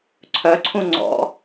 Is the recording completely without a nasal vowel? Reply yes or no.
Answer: no